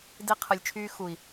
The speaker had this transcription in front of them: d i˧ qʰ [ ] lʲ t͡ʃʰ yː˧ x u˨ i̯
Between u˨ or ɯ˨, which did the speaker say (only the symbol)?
ɯ˨